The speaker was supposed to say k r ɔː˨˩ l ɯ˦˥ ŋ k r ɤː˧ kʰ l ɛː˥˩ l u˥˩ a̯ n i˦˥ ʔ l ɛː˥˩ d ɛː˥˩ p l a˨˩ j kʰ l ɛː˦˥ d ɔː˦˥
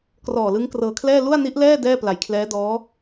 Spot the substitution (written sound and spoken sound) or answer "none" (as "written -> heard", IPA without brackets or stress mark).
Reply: none